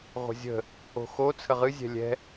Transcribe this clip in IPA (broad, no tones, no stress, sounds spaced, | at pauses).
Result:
ʁʷ ə̤ zʲ ə̤ | o̤ x o t͡sʰ ə ʁ ɨ zʲ ɛ̤ lʲ ɛ̤